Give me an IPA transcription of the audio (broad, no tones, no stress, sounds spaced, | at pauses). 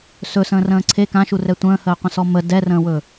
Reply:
s ɵ s ə̃ː r ə̃ː ǀʰ e k ã ʃ u r ɛ tʷ ə̃ː h əː qʷ ə̃ s ɔ m ə d ɛ r ə̃ː w ɵ